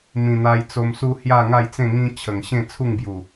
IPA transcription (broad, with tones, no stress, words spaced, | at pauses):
mĩ˨˩n̪a˧jt͡so˧msu˦ hja˥˧ŋa˥˧jt͡sẽ˥˧ŋĩ˦ t͡ɕʰə˨˩ŋɕẽ˥˧ t͡sʰu˥˧ŋbju˨˩